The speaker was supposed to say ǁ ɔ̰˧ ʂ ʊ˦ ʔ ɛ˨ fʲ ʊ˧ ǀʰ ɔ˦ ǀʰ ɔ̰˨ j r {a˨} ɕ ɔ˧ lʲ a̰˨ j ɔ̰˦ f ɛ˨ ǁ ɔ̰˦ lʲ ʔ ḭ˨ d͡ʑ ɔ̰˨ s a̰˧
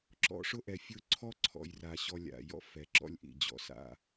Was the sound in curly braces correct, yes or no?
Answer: yes